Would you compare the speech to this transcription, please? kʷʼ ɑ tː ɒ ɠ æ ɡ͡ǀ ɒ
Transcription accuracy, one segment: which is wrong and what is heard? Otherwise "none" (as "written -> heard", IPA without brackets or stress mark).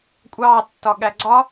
none